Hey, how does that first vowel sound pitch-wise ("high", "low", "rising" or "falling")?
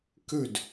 falling